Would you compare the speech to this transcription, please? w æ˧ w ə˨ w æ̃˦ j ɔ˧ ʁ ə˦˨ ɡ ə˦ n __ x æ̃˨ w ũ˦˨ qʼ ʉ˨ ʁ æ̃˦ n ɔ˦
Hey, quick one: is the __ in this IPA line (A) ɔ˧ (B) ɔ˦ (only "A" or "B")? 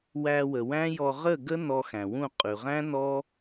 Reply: A